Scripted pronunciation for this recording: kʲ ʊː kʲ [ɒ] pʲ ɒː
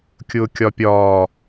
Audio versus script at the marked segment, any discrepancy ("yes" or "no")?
no